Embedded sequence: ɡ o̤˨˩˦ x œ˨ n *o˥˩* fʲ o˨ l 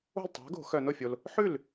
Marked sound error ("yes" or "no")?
no